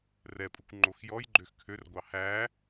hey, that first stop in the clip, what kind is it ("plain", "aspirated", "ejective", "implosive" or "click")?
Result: ejective